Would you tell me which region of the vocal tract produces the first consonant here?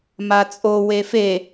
lips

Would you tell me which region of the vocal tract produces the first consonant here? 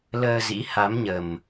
tongue tip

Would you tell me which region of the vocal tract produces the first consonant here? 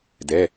tongue tip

